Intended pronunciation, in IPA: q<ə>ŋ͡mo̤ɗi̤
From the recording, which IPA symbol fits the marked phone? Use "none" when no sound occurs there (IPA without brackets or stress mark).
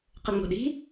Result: ə